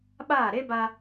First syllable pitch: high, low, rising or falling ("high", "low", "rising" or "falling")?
falling